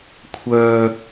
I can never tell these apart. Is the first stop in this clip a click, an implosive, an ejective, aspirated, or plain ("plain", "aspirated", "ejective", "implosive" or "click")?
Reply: aspirated